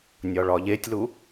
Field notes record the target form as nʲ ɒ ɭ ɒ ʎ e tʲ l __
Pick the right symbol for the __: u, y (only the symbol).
u